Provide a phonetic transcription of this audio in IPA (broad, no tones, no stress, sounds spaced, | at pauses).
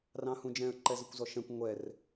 r ɑ̃ h ũ d͡ʒ ɛ̃ ə̯ ǃ ɛ z ə kʷ z ɔ ʃ ɛ̃ kʷ ŋʷ ɛ r